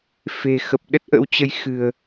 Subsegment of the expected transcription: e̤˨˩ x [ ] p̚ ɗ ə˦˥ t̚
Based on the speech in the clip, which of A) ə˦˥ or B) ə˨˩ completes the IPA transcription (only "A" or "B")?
B